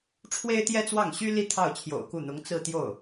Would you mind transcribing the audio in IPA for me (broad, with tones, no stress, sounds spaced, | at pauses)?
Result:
ʈ͡ʂʰ w e˥ ɪ̯ t̪ j ɛ˥ t͡s w ɑ˥˩ ŋ ɕ y˥ l i˥ t̪ʰ ɑ˥˩ ʊ̯ t͡ɕʰ j o̰˨˩ ʊ̯ k u˥˩ n̪ ʊ˧˥ ŋ t͡s ɹ̩˥˧ t̪ j o˥˩ ʊ̯